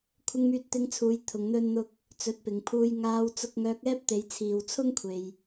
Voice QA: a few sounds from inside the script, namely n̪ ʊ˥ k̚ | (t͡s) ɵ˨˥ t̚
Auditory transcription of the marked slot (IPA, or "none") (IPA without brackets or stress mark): t͡s